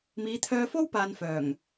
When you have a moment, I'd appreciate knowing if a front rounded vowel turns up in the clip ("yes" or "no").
yes